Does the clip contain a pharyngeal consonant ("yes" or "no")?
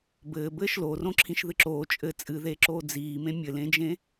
no